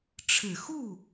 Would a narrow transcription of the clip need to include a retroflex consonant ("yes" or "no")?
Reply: yes